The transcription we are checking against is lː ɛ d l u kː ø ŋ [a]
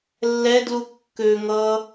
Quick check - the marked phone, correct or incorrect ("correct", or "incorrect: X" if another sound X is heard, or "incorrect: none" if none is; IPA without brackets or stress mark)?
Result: incorrect: ʌ